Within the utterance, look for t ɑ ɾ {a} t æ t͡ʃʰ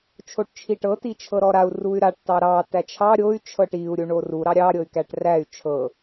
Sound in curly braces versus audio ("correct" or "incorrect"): incorrect